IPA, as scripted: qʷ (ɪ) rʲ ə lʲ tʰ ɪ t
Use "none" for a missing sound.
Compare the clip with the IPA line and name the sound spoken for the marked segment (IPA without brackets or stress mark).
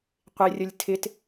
ɪ